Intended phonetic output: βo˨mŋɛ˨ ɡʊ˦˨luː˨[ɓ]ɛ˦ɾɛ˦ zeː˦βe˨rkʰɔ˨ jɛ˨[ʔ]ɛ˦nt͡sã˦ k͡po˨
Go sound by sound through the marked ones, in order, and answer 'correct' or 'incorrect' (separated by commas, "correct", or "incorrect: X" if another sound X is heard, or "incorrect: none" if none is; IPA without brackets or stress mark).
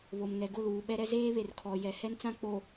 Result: correct, incorrect: h